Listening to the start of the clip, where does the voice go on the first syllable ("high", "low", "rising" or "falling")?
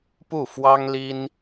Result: falling